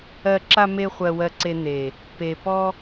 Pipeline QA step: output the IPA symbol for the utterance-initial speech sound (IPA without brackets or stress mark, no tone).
ɜ